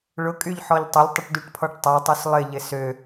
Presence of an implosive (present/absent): absent